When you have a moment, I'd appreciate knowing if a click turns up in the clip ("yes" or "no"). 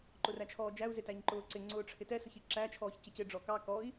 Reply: yes